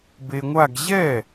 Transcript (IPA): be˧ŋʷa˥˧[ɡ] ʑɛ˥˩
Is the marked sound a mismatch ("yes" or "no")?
no